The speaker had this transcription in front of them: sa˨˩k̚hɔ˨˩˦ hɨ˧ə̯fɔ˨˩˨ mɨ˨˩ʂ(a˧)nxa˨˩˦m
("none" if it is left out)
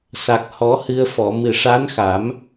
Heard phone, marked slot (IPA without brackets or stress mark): a˧˥